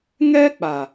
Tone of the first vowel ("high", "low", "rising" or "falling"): high